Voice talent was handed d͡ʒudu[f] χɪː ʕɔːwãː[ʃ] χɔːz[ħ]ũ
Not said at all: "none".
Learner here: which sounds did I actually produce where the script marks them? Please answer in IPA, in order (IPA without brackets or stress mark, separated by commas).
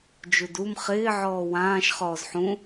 m, ʃ, ħ